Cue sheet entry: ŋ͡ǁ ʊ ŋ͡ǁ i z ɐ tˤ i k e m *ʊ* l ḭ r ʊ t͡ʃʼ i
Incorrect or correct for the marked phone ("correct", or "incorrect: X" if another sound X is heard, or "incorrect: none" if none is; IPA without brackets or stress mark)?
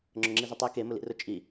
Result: correct